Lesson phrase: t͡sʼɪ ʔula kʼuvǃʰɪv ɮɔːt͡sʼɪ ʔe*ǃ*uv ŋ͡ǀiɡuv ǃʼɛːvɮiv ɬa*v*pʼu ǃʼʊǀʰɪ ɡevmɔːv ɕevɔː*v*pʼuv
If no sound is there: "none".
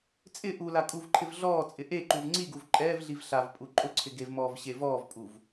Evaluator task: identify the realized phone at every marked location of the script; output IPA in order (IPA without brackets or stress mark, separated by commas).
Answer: ǃ, v, v